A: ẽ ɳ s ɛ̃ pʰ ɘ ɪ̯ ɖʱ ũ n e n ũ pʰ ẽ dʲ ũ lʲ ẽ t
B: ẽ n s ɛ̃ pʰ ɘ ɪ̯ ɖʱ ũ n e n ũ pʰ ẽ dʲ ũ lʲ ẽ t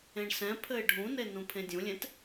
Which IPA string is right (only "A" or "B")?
A